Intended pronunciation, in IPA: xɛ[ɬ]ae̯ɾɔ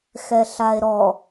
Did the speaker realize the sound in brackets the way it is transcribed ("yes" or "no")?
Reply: yes